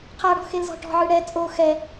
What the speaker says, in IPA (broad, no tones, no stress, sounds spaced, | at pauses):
qʰ a ɽ ɔ̤ x e l z ɔ̤ ʈ ɔ̤ ʕ ɯ ɽ ɛ t͡sʼ o x ɛ